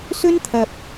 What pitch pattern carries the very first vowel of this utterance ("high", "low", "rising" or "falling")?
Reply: high